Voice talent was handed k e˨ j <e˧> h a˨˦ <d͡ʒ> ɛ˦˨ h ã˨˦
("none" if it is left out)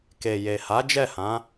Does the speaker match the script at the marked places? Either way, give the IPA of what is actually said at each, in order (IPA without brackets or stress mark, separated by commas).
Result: e˨, d͡ʒ